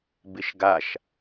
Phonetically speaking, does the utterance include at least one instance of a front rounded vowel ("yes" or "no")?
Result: no